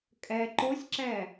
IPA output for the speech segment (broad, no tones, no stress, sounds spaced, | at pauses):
kʼ ɛ ǃ o sʲ ǁ ɛ